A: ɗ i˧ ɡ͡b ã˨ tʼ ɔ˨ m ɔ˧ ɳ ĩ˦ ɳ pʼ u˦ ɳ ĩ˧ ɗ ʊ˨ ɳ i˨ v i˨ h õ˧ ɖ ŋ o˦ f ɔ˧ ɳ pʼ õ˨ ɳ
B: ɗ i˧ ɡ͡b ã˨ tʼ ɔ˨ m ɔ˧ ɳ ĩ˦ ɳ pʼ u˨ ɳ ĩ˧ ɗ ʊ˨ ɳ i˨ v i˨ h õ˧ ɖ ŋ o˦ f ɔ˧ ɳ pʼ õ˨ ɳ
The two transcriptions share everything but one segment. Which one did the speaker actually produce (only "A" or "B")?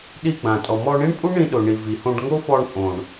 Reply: A